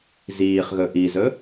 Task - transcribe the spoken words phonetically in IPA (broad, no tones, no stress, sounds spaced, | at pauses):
z iː χ ɣ ɵ ʔ i z ɵ